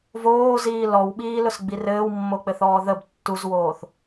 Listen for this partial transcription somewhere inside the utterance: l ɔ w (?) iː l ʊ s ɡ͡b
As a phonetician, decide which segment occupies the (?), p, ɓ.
ɓ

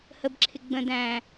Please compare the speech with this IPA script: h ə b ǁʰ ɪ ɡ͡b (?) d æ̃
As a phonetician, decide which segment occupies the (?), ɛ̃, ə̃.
ə̃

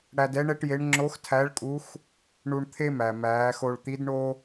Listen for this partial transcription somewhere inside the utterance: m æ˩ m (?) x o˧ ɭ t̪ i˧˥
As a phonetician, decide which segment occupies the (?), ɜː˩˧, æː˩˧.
æː˩˧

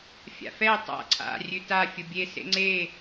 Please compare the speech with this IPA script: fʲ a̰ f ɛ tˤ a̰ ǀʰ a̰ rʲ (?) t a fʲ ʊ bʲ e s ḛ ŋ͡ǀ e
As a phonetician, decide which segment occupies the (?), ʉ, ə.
ʉ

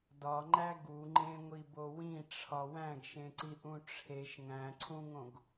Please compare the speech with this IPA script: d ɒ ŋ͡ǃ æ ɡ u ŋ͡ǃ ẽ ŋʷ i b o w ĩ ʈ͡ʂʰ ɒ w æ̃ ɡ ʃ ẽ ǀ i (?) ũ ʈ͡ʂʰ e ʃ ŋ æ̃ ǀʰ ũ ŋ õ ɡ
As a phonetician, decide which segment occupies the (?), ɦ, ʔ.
ʔ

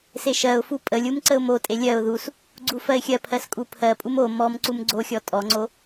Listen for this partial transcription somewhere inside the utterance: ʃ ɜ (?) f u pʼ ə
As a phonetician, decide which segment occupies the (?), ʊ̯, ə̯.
ʊ̯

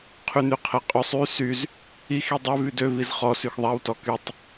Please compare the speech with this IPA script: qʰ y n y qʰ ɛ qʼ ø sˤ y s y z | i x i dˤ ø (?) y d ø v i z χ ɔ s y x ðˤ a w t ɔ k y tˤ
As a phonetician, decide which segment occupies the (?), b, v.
v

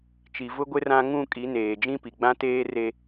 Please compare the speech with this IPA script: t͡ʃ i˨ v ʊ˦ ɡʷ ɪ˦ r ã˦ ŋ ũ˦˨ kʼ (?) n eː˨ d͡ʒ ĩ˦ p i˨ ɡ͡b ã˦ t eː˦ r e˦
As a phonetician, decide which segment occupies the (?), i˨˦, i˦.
i˨˦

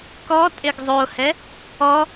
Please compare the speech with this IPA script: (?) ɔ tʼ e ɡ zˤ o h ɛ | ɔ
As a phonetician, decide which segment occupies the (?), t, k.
k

